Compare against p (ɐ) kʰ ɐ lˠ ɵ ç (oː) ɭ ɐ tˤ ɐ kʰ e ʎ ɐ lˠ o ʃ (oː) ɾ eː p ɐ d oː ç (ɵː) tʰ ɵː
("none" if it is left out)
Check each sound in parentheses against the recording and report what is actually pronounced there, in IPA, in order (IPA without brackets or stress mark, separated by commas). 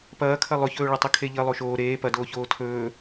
ɐː, ɵː, oː, oː